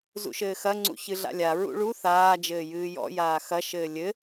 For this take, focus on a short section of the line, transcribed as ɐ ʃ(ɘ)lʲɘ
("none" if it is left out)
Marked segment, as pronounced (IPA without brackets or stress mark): ɘː